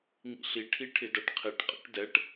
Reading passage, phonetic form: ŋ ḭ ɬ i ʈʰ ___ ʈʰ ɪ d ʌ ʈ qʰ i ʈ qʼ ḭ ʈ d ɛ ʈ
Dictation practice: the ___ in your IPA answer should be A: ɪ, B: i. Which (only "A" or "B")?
B